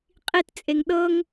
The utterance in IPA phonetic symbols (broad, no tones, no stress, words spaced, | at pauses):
qʼitt͡sʼeŋ ɗɤŋ